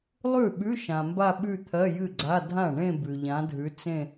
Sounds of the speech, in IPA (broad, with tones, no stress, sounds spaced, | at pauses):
lˠ ʉ˥˩ ɓ ʉ˧˥˧ ʃ ã˨ m b a˥˧ ɓ ʉ˥˧ t̪ʰ ɜ˧˥˧ j ɨ˥˩ ɡ͡ǀ a˧˥˧ dʱ ã˥˩ ɳ ẽ˥˧ b ʉ˨ ʎ ã˧˥ dʱ ʉ˧˥ t͡s ẽ˥˧